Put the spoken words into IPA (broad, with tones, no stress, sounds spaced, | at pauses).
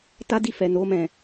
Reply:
t a˦ d i˦˨ f ɛ˨ n o˧ m ɛ̃˨